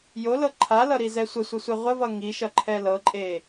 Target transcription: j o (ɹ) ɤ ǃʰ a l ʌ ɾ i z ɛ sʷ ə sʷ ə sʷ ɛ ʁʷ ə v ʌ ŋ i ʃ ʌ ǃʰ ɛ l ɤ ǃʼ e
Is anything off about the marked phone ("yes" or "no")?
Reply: yes